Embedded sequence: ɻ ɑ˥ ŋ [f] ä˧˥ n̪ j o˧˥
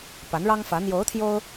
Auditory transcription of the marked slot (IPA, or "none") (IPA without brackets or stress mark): f